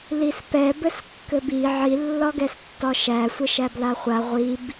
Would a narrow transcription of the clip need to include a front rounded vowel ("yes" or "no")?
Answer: no